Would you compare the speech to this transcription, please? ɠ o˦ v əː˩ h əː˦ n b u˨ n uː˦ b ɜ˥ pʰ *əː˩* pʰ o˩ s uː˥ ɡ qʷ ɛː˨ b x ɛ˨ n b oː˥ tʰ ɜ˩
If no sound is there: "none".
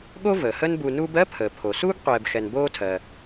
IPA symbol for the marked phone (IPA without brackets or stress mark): əː˩